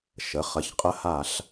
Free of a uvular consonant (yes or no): no